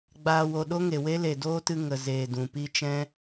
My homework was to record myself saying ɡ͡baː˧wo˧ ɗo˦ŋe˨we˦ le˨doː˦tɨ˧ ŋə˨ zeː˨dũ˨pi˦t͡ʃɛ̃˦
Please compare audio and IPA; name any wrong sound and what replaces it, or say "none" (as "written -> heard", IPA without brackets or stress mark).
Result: none